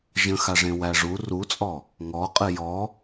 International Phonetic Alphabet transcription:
ʒ ə̃ x a ʐ ẽ w æ ʐ u r u t͡sʼ ɔ | ŋ ɔ qʼ ɨ j ɔ

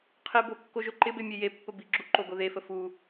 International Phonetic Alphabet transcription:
qʰ ɪ b o kː o ʒ o ǃ ɪ b e mʲ e j e pː ə b i ɡ͡ǁ u ǃ o ɡ o ð e f ə f u

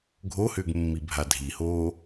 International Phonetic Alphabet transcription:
ɡʱ o h ʏː ɡ mː i bʱ a dʱ i h oː

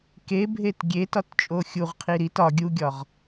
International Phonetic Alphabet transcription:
k e bʱ e t ɡʲ e t ɒ t t͡ʃʼ o xʲ u ʁ qʰ i ɾ i t ɒ ɡʲ u ɡʲ ɒ ʁ

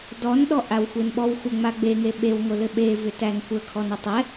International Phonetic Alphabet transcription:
d ɔ n ɗ ɔ ʔ a w xʷ e n ɓ ɔ w xʷ ə ŋ͡m a ɡ͡b e ŋ e ɓ e w ŋʷ ɘ l ɘ ɓ e v ʏ t æ n kʷ ə kʰ ɔ n ɘ tˤ ɛ

